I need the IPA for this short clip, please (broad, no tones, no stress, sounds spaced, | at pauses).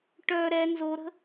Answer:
ʈ œ ɾ ɛ n z o ɾ ə̤